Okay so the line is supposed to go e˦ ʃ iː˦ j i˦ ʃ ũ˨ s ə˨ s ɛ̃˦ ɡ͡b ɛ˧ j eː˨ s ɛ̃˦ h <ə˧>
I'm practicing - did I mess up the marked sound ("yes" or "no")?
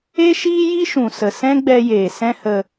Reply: no